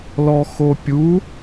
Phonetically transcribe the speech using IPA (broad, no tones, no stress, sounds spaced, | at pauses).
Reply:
l ɔ x o pʲ u